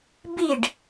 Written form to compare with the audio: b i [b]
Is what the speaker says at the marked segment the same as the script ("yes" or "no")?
no